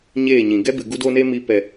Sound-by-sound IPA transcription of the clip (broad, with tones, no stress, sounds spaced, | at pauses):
ɲ eː˦˨ ɲ ĩ˨ ɡ ɛ˦ b ɨ˨ ɡ u˧ d o˧ n e˧ m i˨ p ɛ˨